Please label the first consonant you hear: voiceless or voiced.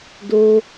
voiced